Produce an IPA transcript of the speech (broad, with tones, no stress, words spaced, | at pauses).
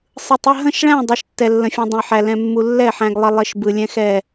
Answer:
sˤɯ˧tˤə˧˥˧ ɦə̃˥˧ʃɭæ̃˥˧ dˤɛ˧˥˧ʃtːɛ˧lːə̃˧fʲũ˧ dˤə̃˧jħæ˧ lɛ̃˧mːu˧ lːɛ˥˧ħæ̃˧ɡlˠɪ˧ lˠɪ˧˥˧ʃbɯ˧ lʲɛ̃˥xɛ˥˧